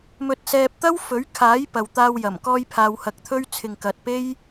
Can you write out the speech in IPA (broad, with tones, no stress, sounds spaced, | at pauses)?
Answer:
m ɵ˧ t̚ s ɛː˧ p̚ t̪ ɐ˥ w f ɵ˨˥ ɥ kʰ aː˨˥ j p ɐ˨ w t̪ aː˧ w j ɐ˨˩ m k ɔː˧ j pʰ aː˧ w h ɐ˧ k̚ t̪ʰ ɵ˥ ɥ t͡sʰ ɪ˨ ŋ k ɐ˨ t̚ p e˥ j